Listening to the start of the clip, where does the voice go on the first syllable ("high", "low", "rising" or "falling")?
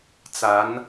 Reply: rising